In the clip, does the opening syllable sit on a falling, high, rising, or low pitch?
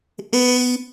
high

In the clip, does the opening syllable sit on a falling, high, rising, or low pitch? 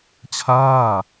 falling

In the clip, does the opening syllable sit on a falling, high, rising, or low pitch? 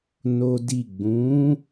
high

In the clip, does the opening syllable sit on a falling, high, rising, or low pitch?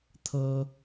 high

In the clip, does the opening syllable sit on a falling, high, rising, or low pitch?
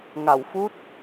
low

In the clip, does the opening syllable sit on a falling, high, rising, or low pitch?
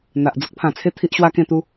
low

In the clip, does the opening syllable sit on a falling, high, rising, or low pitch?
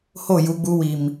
falling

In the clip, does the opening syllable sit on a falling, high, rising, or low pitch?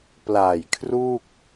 low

